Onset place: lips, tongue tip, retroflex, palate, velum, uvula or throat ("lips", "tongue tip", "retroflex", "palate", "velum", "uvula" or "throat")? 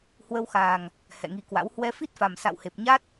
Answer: throat